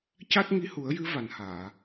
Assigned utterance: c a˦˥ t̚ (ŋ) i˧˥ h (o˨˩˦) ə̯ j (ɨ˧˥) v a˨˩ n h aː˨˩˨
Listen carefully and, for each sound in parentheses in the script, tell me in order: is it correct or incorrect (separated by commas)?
correct, incorrect, correct